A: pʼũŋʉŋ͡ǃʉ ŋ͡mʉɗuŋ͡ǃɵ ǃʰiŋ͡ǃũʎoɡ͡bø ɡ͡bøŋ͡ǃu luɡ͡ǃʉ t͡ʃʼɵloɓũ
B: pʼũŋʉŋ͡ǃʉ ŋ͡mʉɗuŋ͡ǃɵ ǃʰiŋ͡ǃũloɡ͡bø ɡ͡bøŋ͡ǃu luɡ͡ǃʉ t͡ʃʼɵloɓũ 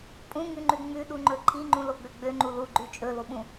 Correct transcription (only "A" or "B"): B